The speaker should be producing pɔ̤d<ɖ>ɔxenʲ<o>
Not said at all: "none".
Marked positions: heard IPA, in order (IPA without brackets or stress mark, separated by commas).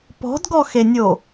ɡ, o